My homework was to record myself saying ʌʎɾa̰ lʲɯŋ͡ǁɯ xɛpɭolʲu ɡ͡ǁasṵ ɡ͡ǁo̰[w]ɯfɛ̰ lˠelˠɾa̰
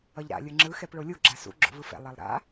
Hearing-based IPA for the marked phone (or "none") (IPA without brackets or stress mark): v